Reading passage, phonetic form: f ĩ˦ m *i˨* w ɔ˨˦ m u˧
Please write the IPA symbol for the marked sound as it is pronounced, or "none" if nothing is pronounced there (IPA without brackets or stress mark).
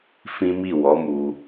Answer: i˦˨